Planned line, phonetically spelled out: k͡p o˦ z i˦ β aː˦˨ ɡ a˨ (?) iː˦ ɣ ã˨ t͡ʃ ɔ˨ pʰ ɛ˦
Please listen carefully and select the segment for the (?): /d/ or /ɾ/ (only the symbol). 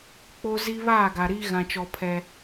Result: ɾ